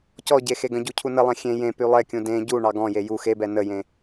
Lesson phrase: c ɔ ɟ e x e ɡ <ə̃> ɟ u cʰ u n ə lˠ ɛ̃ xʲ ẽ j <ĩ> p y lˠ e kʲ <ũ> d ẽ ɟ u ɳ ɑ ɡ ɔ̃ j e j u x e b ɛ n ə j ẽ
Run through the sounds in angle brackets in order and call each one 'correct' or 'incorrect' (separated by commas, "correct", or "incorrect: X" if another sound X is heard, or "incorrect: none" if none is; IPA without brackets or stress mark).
correct, incorrect: ẽ, correct